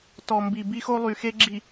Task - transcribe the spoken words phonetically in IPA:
tɔ˨mbi˨ bi˦xo˦ lˠy˨xe˦ɡ͡ǁi˨

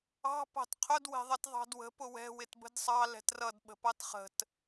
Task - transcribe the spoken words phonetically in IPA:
ɑ̤ pɑ̤tqʰʊd wɛ̤ðˤʌtðˤɑ̤dwə̤ pʊwɛ̤ wɪtbə̤dsˤɑ lɛ̤trʌd ɓə̤pɑtχə̤t

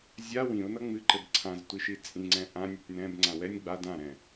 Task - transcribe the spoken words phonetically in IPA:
zʲa wĩʊ̯nʌ ŋ͡mɨǃɘb ǀʰãztʷiʃi t͡sʼĩŋ͡ǀɛ̃ ʔãnʲɨtʲ nɛ̃bŋ͡ǀã wɛnʲ ɡ͡ba dãɾɛ̃

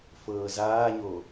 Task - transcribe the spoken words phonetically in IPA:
fɤːzaːɲo

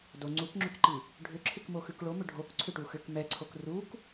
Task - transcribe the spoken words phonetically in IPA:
do ŋ͡ǀukŋ͡ǁʏkǃi | ɖʱʏǁʰɪkmoxʉk ɭomʏ ɖʱok ǀʰʏʈuxʏk mɛǀʰok ruk

